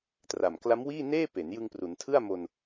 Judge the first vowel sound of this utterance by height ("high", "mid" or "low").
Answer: low